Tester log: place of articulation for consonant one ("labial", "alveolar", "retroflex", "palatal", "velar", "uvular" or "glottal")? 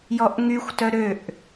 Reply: palatal